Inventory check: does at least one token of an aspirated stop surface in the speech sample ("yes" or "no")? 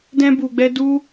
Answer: no